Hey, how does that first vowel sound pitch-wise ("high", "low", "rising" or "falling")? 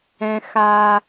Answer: high